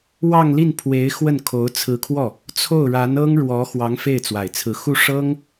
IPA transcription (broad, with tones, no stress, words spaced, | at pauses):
wɑ˥˧ŋli˥˩npʰwe˧˥ɪ̯ xwə˥˩nkʰo˧˥ʊ̯ t͡sʰɹ̩˧˥kʰwɔ˥˩ | t͡sʰo˥˩ʊ̯ɻa˧˥nɤ˥ŋɻwɔ˧˥ xwɑ˧˥ŋfe˥˩ɪ̯t͡swa˨˩ɪ̯t͡sʰɹ̩˧˥ xu˥˩ ʂɤ˥ŋ